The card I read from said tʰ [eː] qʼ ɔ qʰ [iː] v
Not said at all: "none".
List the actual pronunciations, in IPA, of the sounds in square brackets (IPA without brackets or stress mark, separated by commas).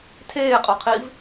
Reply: eː, iː